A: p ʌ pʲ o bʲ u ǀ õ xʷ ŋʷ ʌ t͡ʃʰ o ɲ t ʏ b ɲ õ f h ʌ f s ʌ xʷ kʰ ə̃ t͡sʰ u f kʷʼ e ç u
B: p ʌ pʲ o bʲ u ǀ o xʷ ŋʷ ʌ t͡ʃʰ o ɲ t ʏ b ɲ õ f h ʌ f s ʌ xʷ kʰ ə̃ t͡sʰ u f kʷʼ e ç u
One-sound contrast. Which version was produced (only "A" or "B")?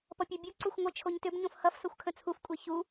B